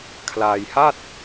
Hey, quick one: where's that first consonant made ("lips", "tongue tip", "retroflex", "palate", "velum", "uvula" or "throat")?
velum